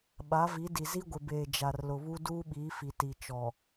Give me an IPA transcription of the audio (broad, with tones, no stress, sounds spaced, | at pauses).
ɓ a˨˦ v i˨˦ d i˨ z i˦ ɡʷ ɪ˨ b eː˨ d͡ʒ a˨ r l ʊ˨ β u˦ d uː˦ ɓ iː˨˦ f i˨ t i˨ t͡ʃ ɔ˨